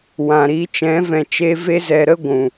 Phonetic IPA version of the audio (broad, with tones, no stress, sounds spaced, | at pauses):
w ã˨ ɾ i˨˦ t͡ʃ ɛ̃˨˦ v ɛ̃˨ t͡ʃ e˧ v e˧ z ɛ˨ ɾ ə˦ ɡʷ ũ˨